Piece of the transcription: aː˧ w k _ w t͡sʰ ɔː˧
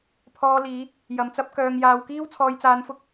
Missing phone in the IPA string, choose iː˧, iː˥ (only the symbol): iː˥